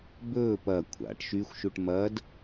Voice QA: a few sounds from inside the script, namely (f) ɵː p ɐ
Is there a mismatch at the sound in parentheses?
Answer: yes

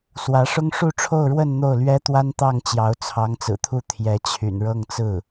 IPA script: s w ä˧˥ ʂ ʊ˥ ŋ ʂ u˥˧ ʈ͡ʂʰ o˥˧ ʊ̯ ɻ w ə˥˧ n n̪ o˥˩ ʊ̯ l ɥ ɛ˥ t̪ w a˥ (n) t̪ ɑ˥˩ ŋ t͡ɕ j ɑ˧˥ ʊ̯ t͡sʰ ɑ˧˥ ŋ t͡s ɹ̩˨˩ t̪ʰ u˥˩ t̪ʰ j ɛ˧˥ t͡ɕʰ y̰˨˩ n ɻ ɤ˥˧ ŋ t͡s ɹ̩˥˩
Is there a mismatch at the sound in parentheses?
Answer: no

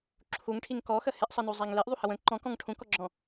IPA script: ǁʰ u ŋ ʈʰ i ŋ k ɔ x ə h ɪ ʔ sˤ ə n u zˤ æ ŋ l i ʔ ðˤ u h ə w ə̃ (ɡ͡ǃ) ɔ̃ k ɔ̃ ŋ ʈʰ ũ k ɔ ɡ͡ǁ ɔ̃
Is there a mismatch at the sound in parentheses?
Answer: yes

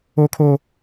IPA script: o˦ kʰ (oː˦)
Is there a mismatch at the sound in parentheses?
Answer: no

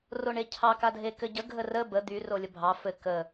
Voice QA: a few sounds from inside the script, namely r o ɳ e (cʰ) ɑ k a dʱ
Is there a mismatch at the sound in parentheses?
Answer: no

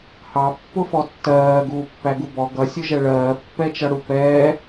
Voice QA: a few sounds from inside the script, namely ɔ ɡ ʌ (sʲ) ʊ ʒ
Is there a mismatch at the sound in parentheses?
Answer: no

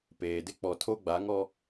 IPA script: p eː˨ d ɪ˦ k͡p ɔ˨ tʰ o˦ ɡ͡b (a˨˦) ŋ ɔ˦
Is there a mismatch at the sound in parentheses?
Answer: no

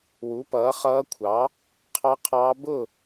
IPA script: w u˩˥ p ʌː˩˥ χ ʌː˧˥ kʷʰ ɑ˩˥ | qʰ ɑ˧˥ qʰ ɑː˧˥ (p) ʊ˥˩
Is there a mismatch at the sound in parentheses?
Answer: yes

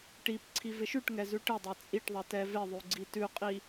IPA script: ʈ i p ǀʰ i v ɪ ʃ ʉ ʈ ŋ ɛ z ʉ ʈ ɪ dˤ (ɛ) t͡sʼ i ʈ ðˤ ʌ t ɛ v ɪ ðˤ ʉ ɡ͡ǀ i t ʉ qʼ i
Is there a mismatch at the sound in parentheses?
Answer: no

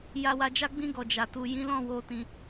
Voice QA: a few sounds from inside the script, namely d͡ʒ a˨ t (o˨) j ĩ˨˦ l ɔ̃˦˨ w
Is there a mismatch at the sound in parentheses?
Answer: yes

